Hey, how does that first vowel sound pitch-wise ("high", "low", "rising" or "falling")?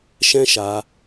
high